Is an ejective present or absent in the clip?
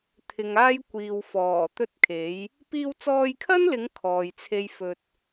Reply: absent